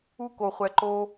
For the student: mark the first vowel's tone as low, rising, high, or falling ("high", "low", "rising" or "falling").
high